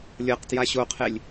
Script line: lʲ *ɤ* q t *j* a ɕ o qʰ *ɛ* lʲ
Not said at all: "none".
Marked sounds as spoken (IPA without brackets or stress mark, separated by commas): ɤ, j, e